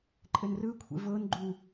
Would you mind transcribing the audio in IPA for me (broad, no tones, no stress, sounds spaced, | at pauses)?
ǃʼ ɘ n r ɯ kʷʰ ḛ v ɤ n ɡ͡ǃ u